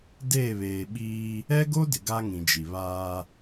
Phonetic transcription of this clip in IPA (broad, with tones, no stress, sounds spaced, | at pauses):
d eː˦˨ β eː˨ ɓ iː˦ | ɛ˦ ɡ o˦ d ɪ˨ ɡ a˦ ŋ ĩ˨ d͡ʒ i˨ β aː˦